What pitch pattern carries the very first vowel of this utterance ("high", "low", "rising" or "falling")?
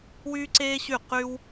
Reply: high